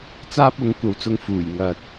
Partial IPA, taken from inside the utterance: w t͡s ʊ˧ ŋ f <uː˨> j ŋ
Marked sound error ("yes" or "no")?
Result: yes